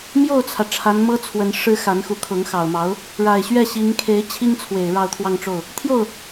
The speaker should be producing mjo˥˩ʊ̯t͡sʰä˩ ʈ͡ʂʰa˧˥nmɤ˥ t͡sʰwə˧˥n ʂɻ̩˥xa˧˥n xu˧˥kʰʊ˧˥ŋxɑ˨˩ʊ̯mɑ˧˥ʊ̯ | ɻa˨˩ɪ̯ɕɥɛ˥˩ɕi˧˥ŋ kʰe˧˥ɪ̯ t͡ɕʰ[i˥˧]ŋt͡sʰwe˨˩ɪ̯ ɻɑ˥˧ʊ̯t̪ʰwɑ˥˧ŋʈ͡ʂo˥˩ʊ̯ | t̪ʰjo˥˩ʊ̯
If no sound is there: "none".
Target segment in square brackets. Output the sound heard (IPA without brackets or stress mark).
i˥